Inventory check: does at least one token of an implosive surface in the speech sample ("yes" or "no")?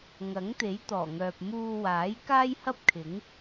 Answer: no